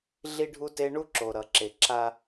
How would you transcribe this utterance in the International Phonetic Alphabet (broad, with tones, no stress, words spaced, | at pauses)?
ɮi˦ɖʱu˦te˦ ɳu˦ǁo˨ ɾʌ˨ǁe˨ ǁa˦